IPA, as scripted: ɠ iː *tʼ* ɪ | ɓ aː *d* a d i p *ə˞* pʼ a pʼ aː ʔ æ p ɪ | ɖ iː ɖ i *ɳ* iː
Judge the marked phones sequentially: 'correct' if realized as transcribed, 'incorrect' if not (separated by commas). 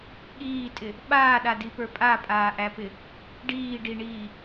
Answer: correct, incorrect, correct, correct